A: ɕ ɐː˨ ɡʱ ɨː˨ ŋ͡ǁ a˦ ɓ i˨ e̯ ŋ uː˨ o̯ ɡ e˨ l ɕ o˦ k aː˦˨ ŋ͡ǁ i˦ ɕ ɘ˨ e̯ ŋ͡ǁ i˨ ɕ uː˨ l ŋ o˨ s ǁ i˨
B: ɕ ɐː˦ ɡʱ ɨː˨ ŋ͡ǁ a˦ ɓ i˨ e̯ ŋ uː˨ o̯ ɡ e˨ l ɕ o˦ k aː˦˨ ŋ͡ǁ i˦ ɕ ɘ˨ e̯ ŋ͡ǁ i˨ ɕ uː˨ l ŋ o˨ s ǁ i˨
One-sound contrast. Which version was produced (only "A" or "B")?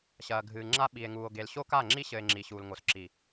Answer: A